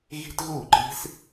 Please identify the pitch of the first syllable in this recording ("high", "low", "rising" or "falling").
high